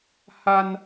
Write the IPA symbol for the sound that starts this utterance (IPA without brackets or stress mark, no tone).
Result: h